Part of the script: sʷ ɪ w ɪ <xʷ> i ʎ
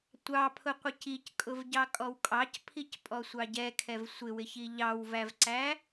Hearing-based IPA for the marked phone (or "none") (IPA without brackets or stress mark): ç